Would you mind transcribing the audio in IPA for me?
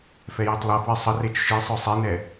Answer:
f ɛ j i tˤ lˠ ɐ f w i sˤ ə r e t͡ʃ ʃ i sˤ œ sˤ i n ɛ

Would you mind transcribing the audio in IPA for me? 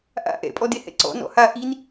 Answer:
ʔ a̰ ʔ ɛ̰ pʼ ɔ d e h ɛ̰ ǀ ɔ̰ n ɔ̰ h a ʔ i n

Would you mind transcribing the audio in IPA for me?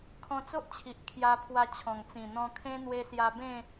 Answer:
kʰ ɔ̃˧ t͡s o˦ ʔ t͡ɕʰ i˨ ʔ kʰ j a˧ pʰ w a˧ t͡ɕʰ ɔ̃˨˩ ŋ t͡s ĩ˨˩ n̪ ɔ̃˧ kʰ ẽ˦ n̪ w e˧ s j a˧ b ẽ˥˧

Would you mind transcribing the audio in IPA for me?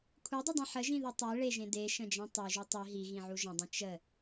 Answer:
kʷʰ e dˤ ɨ dˤ ĩ ħ ə ʒ ĩ ð ɨ tˤ e ɭ e ʒ ẽ d e ʃ ə̃ d͡ʒ ẽ tˤ e ʒ u tˤ i ɦ i ɣ ĩ ʕ u ʒ ə̃ dˤ ĩ t͡ʃ ə

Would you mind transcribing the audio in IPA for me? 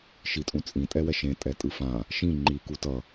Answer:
ʃ i tʼ ũ t͡sʼ ĩ tʼ ɛ w ɛ ʃ ẽ tʼ ɛ tʼ ɯ f ã | ʃ ĩ ŋ͡ǃ i k u t ʌ

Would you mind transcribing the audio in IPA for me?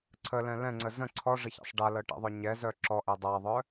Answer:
ǀʰ ə l ɛ̃ l ɛ̃ ŋ͡ǀ ə z ə̃ ǀʰ ɔ ʐ ə ç a̰ sˤ ɖ a l ɤ ʈ ɛ̰ ðˤ œ ɲ ɛ z œ ǁ ɔ ʔ ɛ dˤ a ðˤ œ

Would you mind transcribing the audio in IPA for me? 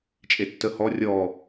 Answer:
t͡ʃʼ e tː ə h ɔ rʲ ɔ

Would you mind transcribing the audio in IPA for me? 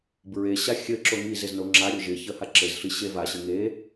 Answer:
b ɹ e ɕ a xʲ ɘ ǁ o ŋ i z ɪ z n o ŋ͡ǁ a ɾʲ o ʒ ɪ ç ə h a ǁ ɘ z ɬ i ɕ e v a ɕ ɘ ŋ e

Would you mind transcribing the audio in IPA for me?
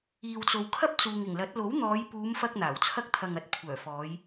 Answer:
iː˨ w t͡s o˨ w kʰ ɐ˥ p̚ t͡s uː˨ ŋ ɪ˨˩ ŋ l ɐ˨˥ t̚ l o˨˥ w n̪ ɔː˨˧ j p uː˨˧ m f ɐ˧ k̚ n̪ aː˨˩ w t͡sʰ ɐ˥ k̚ t̪ʰ ɐ˧ ŋ ɐ˧ t̚ kʷʰ œː˨˩ f ɔː˨˧ j

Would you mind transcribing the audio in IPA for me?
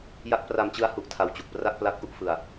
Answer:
j a˦˥ k̚ p r a˧ m t͡ɕ ɯ˦˥ a̯ h u˦˥ ʔ tʰ a˧ w t͡ɕ u˨˩ k̚ p r a˥˩ k̚ p l a˦˥ k̚ ʔ u˥˩ ʔ f ɯ˧ a̯

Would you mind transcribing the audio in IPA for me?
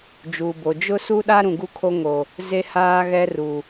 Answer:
d͡ʒ uː˨ b o˨ d͡ʒ ʊ˦ s u˦ ɗ a˦ ɾ ũ˨ ɡ u˦ kʰ o˦ ŋ o˨ | z e˦ h aː˦ ɣ ɛ˦ r u˨

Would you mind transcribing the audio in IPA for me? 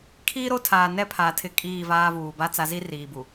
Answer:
kʰ iː˦ ɾ o˦ tʰ aː˨ n ɛ˦ pʰ a˨ tʰ ɪ˦ kʼ iː˦˨ v aː˦ v uː˨ b a˦ t͡s a˨˦ z i˦ r iː˨ b u˨

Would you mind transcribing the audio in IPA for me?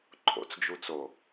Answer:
ǃʰ o̰ t͡s d͡ʒ u t͡s o

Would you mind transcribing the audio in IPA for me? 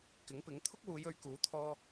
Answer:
k ɪ˨˥ ŋ p ɪ˨˥ ŋ t̪ʰ ʊ˥ k̚ w uː˨˧ j ɵ˨˧ ɥ k uː˨˥ t̪ʰ ɔː˧

